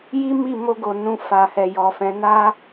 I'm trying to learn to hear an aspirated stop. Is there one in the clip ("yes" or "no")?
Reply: no